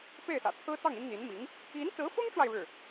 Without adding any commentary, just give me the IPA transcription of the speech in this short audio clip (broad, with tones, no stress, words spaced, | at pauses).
pe˥˩ɪ̯sä̰˨˩t͡sʰɹ̩˥t͡sɑ˥˩ŋ i˥nn̪i˧˥nmi˧˥ŋ | i˧˥nt͡sɹ̩˧˥fʊ˥ŋʈ͡ʂwa˨ɪ̯ ɻɻ̩˥˩